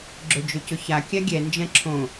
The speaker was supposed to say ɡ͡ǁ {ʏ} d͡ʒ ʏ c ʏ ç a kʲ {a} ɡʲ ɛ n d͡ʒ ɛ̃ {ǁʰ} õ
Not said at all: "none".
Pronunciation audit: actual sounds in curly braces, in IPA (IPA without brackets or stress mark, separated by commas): ʏ, a, ǁʰ